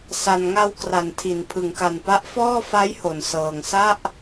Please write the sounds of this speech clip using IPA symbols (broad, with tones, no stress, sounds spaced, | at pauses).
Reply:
s a˨˩ n ŋ a˧ w k r a˩˦ n tʰ i˩˦ n pʰ ɯ˩˦ ŋ k a˨˩ n p a˦˥ ʔ f ɔː˥˩ f a˦˥ j h o˩˦ n s ɤː˨˩ ŋ s a˥˩ ʔ